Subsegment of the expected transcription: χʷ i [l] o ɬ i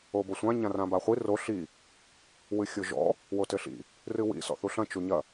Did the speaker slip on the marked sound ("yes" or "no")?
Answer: yes